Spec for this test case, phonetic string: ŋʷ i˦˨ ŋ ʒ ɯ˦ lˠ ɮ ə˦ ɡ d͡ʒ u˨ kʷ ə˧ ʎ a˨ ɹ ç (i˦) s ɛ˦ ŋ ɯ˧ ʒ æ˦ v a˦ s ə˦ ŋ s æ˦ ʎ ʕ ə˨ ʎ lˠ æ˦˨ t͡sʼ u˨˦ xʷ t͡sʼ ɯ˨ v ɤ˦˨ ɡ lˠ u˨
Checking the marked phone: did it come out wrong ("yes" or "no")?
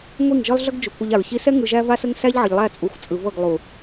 no